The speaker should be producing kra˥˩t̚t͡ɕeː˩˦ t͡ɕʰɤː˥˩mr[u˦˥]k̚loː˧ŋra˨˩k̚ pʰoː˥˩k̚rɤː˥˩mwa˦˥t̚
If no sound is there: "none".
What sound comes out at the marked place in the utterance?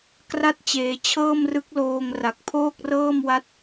ɯ˦˥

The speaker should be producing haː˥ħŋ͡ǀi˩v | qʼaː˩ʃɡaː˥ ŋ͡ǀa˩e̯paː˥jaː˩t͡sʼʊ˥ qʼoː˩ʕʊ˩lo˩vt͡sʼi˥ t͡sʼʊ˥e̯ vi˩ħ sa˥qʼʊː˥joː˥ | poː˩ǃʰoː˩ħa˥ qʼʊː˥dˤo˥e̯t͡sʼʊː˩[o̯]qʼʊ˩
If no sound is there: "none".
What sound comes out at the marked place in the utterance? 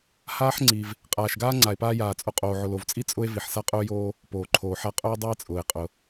e̯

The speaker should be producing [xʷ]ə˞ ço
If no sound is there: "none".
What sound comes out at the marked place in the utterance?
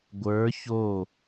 ɡʷ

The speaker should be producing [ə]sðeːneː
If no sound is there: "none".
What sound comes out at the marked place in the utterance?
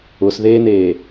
ʊ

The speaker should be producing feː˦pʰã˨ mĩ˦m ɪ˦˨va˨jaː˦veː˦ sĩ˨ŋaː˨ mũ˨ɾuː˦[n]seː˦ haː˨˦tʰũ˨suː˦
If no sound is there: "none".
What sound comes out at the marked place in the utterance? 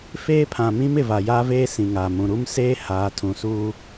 m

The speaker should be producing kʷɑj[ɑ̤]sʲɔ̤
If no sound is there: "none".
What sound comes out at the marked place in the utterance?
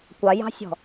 ɑ̤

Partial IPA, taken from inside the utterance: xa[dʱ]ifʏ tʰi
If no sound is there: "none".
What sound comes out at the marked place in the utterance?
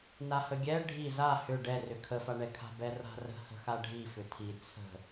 ɖʱ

